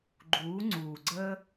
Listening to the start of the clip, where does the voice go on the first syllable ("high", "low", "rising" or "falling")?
rising